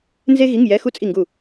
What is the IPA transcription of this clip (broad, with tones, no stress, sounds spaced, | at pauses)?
n z e˥ ɣ i˧˥˧ ŋ j ɛ˧˥˧ x u˥ t͡sʼ i˦˨ ŋ ɡ u˦˨